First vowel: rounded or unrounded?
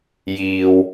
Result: unrounded